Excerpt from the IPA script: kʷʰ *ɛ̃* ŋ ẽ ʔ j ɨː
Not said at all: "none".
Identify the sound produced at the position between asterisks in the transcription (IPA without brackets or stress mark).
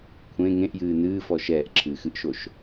ẽ